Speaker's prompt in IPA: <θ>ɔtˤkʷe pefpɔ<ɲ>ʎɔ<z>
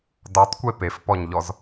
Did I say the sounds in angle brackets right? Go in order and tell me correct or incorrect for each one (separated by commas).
incorrect, correct, correct